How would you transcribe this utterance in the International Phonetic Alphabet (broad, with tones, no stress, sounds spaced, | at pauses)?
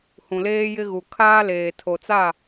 h ũ˨ l eː˦ j ɪ˦ ɣ u˨ kʰ aː˦ l eː˨ tʰ o˨ t͡s a˦˨